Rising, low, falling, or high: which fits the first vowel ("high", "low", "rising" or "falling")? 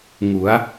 rising